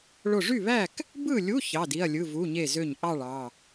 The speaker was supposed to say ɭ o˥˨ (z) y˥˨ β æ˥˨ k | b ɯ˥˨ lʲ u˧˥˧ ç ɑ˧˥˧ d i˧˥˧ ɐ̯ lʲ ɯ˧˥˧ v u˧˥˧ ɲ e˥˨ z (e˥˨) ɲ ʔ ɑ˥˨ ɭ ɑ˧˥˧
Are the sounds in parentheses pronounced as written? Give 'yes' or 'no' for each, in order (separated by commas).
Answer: no, no